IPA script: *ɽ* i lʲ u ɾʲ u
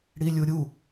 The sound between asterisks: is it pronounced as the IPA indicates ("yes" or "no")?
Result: yes